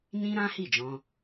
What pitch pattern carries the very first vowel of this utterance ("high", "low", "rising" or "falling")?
high